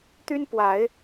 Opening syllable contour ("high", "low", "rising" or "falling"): high